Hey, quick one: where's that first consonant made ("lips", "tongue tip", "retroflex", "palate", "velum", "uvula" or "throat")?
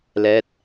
tongue tip